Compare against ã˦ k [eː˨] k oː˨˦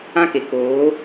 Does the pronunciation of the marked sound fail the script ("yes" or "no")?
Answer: yes